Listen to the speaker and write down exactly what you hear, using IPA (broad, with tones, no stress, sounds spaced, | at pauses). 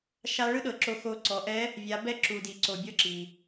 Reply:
ʃ a˧˥ ɭ ɯ˥ ɗ ɤ˩ ǁ o˧ x o˧ ǀ ɔ˩˧ ʔ ɛ˧˥ | vʲ a˩˧ b ɛ˧ ǁ u˩ d i˩ ǀ o˩ bʲ ɤ˥ ǁ i˩